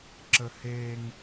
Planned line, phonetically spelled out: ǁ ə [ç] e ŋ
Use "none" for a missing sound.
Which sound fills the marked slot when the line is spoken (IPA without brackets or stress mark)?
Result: h